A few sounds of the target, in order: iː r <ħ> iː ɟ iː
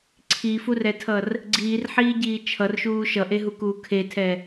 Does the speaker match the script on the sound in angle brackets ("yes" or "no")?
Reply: yes